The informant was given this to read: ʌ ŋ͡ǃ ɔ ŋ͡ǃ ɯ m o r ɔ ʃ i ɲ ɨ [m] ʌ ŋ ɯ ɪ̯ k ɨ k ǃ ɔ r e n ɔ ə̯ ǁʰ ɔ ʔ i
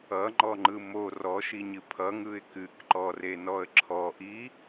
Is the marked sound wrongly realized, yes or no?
yes